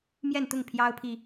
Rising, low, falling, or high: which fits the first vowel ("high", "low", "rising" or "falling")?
falling